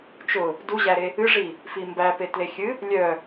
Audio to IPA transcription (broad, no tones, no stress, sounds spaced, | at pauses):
t͡ʃ ʊ | d u ʑ æ ɾ e | ɨ ʐ i | f i m b æ p e t l e xʲ ɨ | lʲ œ